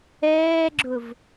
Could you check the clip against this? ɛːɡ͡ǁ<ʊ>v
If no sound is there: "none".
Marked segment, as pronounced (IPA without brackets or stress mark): ʊ